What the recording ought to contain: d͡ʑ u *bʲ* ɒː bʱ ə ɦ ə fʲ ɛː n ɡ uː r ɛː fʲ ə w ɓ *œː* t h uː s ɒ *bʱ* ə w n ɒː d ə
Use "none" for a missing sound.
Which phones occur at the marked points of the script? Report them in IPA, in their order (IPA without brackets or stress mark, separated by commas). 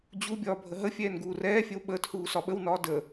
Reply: bʲ, əː, ɓ